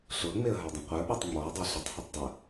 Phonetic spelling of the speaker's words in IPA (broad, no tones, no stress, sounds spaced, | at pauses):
ɬ ʊ ə̯ ŋ͡m e ə̯ ɦ ə˞ dˤ ə̃ qʷ ə˞ ɓ ɔ tˤ ŋ͡m ɔ ə̯ dˤ ɤ ɬ ə tˤ h i tˤ dˤ ə